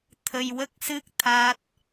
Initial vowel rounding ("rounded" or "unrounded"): unrounded